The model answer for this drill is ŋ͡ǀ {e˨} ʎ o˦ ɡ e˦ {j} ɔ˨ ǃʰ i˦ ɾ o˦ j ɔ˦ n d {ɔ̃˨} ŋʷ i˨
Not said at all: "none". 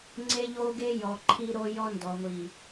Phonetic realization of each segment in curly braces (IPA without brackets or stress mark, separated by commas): e˦, j, ɔ˨